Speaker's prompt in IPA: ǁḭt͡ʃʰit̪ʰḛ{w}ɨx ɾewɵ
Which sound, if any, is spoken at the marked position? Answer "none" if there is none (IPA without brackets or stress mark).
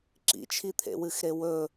w